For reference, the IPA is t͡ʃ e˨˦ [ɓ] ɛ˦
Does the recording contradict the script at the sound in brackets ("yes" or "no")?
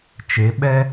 no